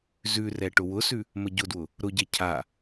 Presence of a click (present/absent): absent